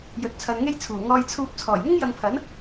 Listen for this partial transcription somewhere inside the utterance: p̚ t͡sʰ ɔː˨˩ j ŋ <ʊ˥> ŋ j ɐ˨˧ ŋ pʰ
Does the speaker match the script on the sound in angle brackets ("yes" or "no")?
yes